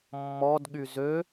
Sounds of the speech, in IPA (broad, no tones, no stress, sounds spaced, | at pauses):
mː ɔ d ɠ y z ø